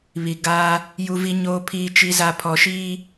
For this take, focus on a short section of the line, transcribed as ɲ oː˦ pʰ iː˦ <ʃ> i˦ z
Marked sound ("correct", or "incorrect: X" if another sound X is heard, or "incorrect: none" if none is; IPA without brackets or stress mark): incorrect: t͡ʃ